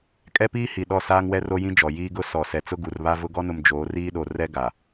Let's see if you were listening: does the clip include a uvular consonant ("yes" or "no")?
no